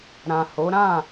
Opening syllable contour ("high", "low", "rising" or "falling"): low